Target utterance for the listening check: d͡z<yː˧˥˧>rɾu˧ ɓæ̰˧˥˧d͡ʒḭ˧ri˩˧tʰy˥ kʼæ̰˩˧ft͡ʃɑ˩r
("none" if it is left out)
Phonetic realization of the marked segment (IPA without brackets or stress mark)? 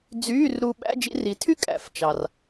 yː˧˥˧